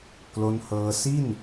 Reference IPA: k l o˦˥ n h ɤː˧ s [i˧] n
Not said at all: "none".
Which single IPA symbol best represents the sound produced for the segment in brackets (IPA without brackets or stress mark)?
i˥˩